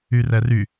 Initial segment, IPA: y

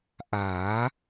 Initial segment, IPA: ʔ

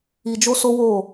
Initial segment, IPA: i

